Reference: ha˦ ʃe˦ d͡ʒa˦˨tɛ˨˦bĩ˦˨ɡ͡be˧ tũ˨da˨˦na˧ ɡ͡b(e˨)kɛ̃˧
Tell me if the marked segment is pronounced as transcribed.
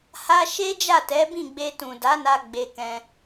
no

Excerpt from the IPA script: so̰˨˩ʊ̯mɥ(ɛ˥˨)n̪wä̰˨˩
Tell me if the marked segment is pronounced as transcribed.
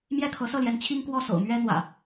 no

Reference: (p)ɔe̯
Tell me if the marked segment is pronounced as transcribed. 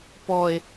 yes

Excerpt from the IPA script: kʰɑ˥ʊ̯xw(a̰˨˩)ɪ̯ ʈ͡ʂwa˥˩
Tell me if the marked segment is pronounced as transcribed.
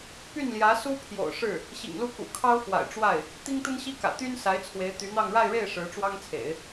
yes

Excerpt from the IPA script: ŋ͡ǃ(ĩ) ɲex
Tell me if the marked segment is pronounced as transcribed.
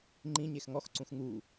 yes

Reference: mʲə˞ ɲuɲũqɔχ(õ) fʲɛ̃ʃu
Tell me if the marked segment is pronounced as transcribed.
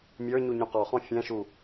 no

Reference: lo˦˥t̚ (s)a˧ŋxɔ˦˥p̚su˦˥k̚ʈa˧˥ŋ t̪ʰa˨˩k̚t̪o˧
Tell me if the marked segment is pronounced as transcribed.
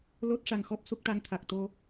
no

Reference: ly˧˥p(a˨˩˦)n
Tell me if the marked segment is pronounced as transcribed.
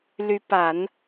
yes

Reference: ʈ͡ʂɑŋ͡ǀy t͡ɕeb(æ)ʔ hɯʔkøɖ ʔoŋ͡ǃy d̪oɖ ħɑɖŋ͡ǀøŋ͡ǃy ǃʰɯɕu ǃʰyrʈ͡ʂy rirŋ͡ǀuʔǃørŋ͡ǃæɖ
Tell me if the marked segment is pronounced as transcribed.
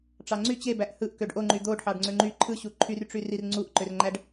yes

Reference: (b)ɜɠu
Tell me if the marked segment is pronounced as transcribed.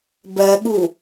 yes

